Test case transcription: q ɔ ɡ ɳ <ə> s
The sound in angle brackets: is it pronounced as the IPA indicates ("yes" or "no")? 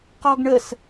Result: yes